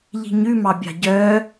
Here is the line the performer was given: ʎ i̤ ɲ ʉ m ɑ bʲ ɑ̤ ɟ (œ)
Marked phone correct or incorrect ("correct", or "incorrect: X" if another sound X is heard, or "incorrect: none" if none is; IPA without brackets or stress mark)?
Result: correct